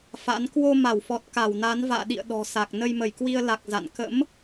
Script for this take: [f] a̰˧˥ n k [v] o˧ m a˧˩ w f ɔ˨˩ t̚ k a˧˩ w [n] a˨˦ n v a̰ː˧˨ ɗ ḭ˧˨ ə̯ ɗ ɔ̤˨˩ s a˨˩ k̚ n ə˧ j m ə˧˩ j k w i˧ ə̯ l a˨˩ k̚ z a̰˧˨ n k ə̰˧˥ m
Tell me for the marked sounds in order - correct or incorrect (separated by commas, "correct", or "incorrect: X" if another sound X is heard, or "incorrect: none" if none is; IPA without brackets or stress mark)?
correct, incorrect: w, correct